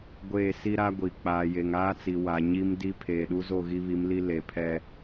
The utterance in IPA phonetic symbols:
ɡʷ eː˦˨ s i˦ ɾ a˦ ɡʷ i˨ k͡p aː˨ j e˨ ŋ aː˦ t͡s i˨ w a˨ ɲ i˦ m d i˦ pʰ eː˨ ɗ u˦ z o˦˨ ɣ i˦ β i˨˦ m l i˦ l e˨ pʰ ɛ˦

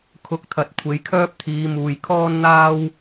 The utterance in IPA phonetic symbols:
kʰ ʊ˨˥ k̚ t̪ʰ ɐ˨ t̚ kʷʰ e˨˧ j kʰ œː˥ p̚ t̪ʰ iː˨˧ m uː˨ j kʰ ɔː˥ n n̪ aː˥ w

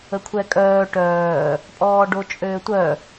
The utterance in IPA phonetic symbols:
ə kʷʰ ɛ kʼ œː ʈ œː | pʼ ɔː ɖ o t͡ʃʼ øː tʷ œ

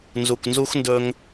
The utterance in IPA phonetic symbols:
n z u˨ k n z u˦ x n d ɵ˧ ŋ

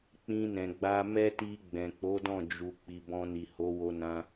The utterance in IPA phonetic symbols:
k͡p ĩ˧ n ɛ̃˨ ɡ͡b a˧ m ɛ˦ t i˧ ɡ͡b ɛ̃˨ k͡p o˨˦ d ɔ̃˦˨ d͡ʒ u˨ k͡p i˨ b ɔ̃˧ n i˨ h o˨˦ w o˧ n ã˧

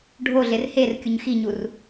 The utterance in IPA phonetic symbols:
ɖʱ o ɮ e r h e r kʲ u ɲ x i ɲ u r

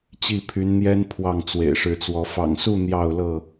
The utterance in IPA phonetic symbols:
t͡ɕ i˥˨ pʰ y˨˦ n n̪ j ɛ˦ n pʰ w ɑ˥˨ ŋ t͡s w ḛ˨˩ ɪ̯ ʂ ɻ̩˨˦ t͡s w ɔ˨˦ f ɑ̰˨˩ ŋ s u˥˨ n̪ j ɑ˥˨ ʊ̯ l ɤ˥˨

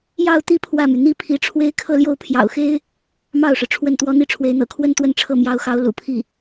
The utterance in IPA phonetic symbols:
j ɑ˥˧ ʊ̯ t̪ i˥˧ pʰ w ä˥˩ m y˩ n̪ i˥ pʰ i˧˥ ʈ͡ʂʰ w e˥ ɪ̯ kʰ ɤ˥˧ l j o˥˩ ʊ̯ pʰ j ɑ̰˨˩ ʊ̯ x e˥ ɪ̯ | m ɑ˥˩ ʊ̯ ʂ ɻ̩˩ ʈ͡ʂʰ w ə˥˩ n t̪ w ɔ˥ n̪ i˥˩ ʈ͡ʂʰ w e˧˥ ɪ̯ n̪ ɤ̰˨˩ kʰ w ə˥ n t̪ w ə˥˧ n ʈ͡ʂʰ ɤ˥˩ m j ɑ˧˥ ʊ̯ x ɑ˧˥ ʊ̯ l ṵ˨˩ pʰ i˥˩

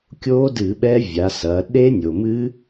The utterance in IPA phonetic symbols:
kʲ o˦˥ d ɨ˧˩˧ ɓ ɛ˦˥ vʲ a˩˧ s ɐ˩˧ ɗ e˦˥ nʲ o˩ m ɨ˦˥

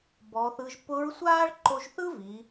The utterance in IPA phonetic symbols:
b ɔː˩˧ θ ɯ˧ ʒ p ʊ˧˥ ɹ sʷ aː˥ ɭ ǃ o˧ ʒ θ ɯ˥ v i˩˧

